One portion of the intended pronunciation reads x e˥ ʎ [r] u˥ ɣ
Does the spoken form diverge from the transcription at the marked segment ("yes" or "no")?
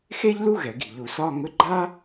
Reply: yes